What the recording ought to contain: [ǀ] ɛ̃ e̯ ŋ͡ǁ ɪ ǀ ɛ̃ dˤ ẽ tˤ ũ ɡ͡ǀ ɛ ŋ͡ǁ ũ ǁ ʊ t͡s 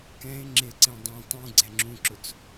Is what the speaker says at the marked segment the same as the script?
no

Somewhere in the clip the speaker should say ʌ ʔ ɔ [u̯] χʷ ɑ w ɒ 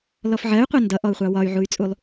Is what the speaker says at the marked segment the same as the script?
yes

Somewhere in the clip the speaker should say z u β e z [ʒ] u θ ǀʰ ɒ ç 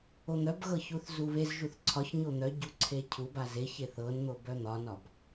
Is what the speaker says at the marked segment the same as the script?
yes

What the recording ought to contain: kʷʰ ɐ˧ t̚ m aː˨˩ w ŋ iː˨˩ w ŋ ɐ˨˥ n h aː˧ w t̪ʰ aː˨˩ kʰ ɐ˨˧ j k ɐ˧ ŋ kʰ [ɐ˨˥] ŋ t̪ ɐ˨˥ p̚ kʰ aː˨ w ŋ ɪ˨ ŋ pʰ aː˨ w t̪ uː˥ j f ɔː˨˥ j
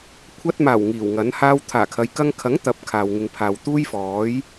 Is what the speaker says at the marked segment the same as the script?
yes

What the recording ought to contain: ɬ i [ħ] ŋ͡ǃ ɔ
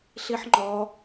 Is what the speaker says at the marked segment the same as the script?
yes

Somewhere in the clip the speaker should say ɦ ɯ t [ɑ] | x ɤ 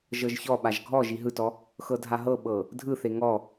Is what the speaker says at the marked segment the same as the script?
no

